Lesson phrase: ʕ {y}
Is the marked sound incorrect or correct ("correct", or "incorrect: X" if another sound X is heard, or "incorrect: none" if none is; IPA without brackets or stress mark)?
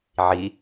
incorrect: i